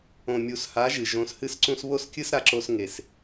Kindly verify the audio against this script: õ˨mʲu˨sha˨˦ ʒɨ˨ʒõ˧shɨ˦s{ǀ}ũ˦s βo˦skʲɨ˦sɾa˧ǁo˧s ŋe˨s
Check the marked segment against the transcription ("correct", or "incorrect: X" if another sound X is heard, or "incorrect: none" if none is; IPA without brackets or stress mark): correct